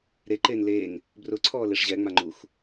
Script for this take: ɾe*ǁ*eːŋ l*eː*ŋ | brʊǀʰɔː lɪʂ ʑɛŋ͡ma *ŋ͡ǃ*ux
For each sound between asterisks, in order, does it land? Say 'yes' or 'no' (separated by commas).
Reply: no, yes, yes